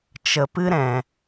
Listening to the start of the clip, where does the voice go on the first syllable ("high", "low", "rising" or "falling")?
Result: low